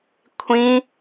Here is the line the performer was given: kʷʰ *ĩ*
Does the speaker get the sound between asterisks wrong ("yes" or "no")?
no